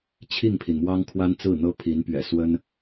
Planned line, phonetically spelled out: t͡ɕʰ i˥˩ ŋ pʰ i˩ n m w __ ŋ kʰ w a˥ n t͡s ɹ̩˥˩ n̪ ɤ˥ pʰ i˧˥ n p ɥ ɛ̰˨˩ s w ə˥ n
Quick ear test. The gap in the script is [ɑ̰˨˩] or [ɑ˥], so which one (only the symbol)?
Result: ɑ˥